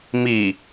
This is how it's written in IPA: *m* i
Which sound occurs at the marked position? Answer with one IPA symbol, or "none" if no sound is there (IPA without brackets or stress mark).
m